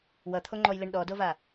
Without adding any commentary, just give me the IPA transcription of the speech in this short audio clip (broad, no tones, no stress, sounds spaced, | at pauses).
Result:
w ʌ t̪ʰ o ŋ͡ǃ ɔ j l e ɳ ɗ ɔ d o v a